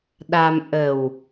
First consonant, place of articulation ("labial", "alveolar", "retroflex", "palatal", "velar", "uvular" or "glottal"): alveolar